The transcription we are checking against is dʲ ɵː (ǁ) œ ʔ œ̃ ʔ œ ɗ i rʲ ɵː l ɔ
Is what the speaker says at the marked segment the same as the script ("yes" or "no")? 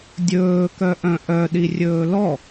no